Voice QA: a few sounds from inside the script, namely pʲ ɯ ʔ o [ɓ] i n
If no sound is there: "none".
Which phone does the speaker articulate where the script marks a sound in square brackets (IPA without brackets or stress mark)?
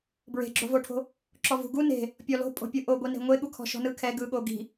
ɡʷ